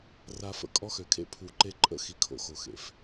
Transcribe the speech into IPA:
r a˨ f ə̰˨ kʼ ɔ˦ x ø˨ kʰ ḛ˦ pʰ u˨ ǃ e˦ ǃʼ ə̰˦ x i˨ kʰ o̰˨ x o˨ x ḛ˨ f

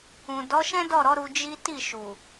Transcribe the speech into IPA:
ũ˨ d ɔ˨˦ ʃ ɛ̃˦ d ɔ˦˨ ɾ ɔ˨˦ ɾ u˧ d͡ʒ i˦ t i˦˨ ʃ u˨

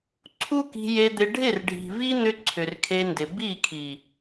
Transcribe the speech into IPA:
ǀʰ u˦ k i̤˧ j e˧ d̪ ɪ˧ ɖʱ ɪ˦˨ r ɖʱ i̤˨ v i˦ n̪ ʏ˧ ǀʰ ʏ˨ r kʰ e˧ n d ɪ˨ b i˦˨ kʰ i˨

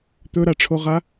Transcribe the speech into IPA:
t̪ ɵ ɾ a ʈ͡ʂʰ o ʁ a

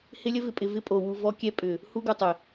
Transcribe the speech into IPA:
h ɪ˧ lʲ ə˧ v ɪ˨ pʼ ɪ˨ v ɪ˧ pʼ o˨ w u˨ v ɔ˧ kʲ ɛ˧ pʼ ʏ˨ | h u˧ ɡ u˨ tˤ ɪ˨

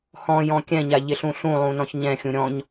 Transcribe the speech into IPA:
h ɔ̃ j ɔ̃ kʲ ɛ̃ ɲ a ʎ ɪ ɬ ũ ɬ ũ lˠ ũ n ɔ̃ ç ɲ ɛ̃ xʲ ũ ɾʲ ɔ̃ ɲ

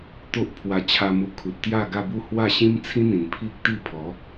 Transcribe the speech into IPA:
t̪ o˦ ʔ pʰ w a˧ t͡ɕʰ a˧ m u˧ kʰ u˨ t̚ t̪ j a˥˧ ɡ a˥˧ b u˥˧ h w a˥˧ ɕ ĩ˦ m t͡sʰ ĩ˦ n̪ ĩ˨˩ n pʰ i˦ k̚ t̪ i˥˧ pʰ ɔ˨˦

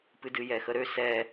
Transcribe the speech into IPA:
p ɨ d ɨ j ɛ x ə ɾ ø s ɛ

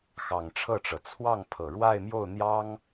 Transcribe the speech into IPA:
x ɑ˨˩ ŋ ʈ͡ʂʰ ɤ˥˩ ʈ͡ʂ ɤ˩ t͡sʰ w ɑ˥˩ ŋ pʰ ɤ˨˩ ɻ w a˥˧ ɪ̯ m j o˥˩ ʊ̯ n̪ j ɑ˥ ŋ

